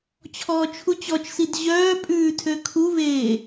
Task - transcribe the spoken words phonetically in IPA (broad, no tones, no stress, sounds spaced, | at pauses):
t͡ɕʰ ɔː t͡ʃʰ u t͡ɕ ɔ t͡ʃ s i d ʑ œː pʼ ʉː tʰ ø kʰ u v eː